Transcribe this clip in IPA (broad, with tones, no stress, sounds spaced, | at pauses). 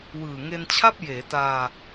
w ɯː˨˩ ŋ e˧ n t͡ɕʰ a˥˩ p̚ j eː˩˦ t aː˧